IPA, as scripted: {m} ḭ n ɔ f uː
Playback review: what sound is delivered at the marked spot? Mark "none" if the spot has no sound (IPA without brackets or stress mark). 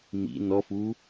m